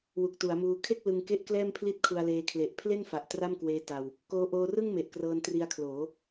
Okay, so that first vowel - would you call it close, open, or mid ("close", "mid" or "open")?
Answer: close